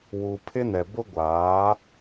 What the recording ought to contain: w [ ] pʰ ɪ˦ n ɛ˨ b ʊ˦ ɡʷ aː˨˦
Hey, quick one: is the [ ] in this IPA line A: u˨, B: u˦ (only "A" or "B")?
A